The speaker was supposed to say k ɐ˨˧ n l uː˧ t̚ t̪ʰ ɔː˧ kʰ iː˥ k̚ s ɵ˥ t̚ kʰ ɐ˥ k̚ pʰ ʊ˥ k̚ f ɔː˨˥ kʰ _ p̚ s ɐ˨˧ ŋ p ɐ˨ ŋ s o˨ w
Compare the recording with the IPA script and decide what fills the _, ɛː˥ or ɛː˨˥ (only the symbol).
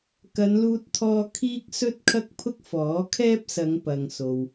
ɛː˥